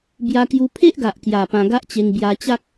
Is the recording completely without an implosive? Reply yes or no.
yes